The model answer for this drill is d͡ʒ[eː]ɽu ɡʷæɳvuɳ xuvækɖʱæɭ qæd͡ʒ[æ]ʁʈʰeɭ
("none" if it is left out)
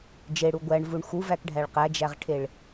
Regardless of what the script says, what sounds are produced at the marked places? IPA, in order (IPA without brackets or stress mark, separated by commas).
e, æ